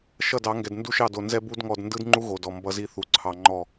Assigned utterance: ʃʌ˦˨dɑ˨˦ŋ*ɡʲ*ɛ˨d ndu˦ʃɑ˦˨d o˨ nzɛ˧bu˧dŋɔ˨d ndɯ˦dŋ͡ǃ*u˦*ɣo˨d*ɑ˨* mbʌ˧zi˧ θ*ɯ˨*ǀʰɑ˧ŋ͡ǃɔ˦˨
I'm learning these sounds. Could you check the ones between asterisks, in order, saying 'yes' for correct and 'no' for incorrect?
no, yes, no, no

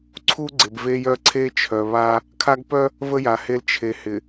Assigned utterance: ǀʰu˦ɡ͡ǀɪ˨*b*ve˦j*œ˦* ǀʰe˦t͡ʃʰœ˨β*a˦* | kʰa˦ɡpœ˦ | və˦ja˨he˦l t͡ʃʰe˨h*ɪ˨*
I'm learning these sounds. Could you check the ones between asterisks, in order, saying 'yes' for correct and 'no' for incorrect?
yes, yes, yes, yes

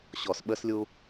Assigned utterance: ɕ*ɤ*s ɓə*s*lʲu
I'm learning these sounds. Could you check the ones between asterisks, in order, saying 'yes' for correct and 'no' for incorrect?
no, yes

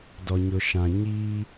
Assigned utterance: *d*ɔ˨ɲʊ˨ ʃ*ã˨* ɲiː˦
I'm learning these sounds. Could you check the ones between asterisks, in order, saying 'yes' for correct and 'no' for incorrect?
yes, yes

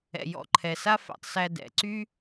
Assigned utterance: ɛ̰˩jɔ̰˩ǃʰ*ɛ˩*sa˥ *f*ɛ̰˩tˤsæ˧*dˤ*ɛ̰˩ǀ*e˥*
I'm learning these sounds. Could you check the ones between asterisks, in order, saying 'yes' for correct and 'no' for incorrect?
yes, yes, no, no

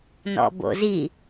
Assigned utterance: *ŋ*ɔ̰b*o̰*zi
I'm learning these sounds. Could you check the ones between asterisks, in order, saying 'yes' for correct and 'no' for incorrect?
no, yes

